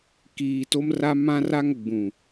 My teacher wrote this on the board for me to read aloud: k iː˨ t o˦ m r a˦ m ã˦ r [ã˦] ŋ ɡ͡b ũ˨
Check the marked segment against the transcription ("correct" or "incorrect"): incorrect